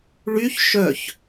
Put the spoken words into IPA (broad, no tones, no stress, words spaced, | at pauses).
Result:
ɭyç ʃœç